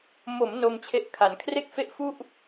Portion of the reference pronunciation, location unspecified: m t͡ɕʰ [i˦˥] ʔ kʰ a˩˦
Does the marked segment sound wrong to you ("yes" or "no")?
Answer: yes